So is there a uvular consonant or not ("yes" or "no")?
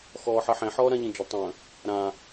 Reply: no